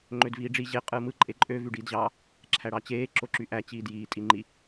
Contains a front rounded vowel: yes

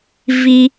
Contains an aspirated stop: no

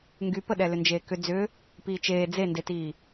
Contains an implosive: yes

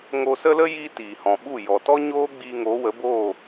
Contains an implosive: yes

